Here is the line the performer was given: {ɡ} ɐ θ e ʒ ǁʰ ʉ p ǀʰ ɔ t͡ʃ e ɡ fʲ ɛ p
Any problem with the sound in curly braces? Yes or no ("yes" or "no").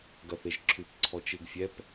no